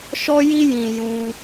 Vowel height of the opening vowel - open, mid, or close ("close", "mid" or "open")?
mid